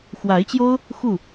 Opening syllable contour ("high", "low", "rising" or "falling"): rising